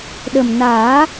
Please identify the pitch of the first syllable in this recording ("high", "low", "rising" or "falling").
low